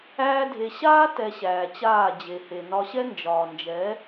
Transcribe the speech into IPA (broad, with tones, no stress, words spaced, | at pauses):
æː˦dʱe˧ ɕaː˦ tɛ˧ɕæː˨t͡ɕaː˦˨ d͡ʑe˨he˨ nɒ˧ɕɛ˦ nd͡ʒɒː˨nd͡ʒɛ˨˦